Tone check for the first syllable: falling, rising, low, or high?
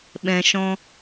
low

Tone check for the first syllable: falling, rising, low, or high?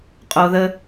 low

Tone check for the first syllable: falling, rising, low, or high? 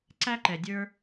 high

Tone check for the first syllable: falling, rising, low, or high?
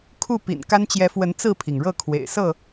falling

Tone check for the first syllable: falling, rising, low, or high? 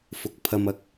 low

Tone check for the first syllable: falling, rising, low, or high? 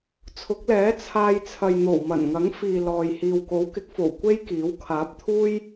rising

